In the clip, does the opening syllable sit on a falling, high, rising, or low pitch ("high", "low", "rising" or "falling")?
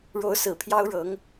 rising